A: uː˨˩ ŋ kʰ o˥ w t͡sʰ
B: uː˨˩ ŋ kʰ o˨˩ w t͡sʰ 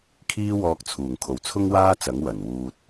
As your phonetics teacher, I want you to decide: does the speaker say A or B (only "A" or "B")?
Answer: B